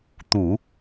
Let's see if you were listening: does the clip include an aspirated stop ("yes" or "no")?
no